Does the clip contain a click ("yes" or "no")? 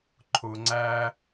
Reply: yes